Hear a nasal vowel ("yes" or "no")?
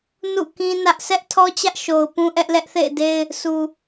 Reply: yes